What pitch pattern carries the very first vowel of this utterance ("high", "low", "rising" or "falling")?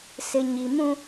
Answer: low